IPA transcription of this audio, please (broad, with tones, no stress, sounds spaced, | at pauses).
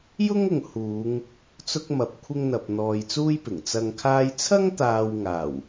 j ʊ˥ ŋ ʊ˨ ŋ h uː˨˧ ŋ | t͡s ʊ˥ k̚ m ɐ˧ p̚ kʷʰ ɪ˥ ŋ n̪ ɐ˧ p̚ n̪ ɔː˧ j t͡s uː˥ j p ɪ˨˩ ŋ t͡s ɐ˨ ŋ kʰ aː˧ j t͡sʰ ɐ˥ ŋ t̪ aː˧ w ŋ aː˨˩ w